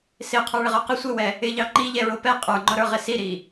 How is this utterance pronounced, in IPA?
s ɪ qʰ ə˞ ɭ ɪ ʁ ə˞ q ɪ sʷ ɪ w ɛ | ɪ ʎ ɑ ŋ͡ǃ i ʎ ɛ ɹ ʊ p ɛ qʼ ə˞ ŋ͡ǃ ʊ ɾ ə˞ ʁ ɪ s i ɾ i

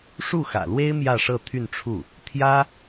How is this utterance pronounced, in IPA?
ʂ u˥˩ x ä̰˨˩ l w e˥ ɪ̯ m j ä˥˧ ʂ ɤ˥˧ t̪ʰ y˥˧ n ʈ͡ʂʰ u˥˩ | t̪ʰ j ä˥

